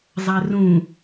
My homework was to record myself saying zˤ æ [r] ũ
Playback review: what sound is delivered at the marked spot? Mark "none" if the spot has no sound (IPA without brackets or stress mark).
r